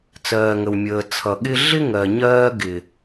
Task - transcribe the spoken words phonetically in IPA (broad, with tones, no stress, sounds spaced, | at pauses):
t͡s ɜː˨ ŋ ə˨ w mʲ əː˨ t͡sʰ ʌ˨ ɠ ɪ˦ ɮ ɪ˦ ŋ ɜ˨ ɲ ɜː˦ ɡ ɪ˨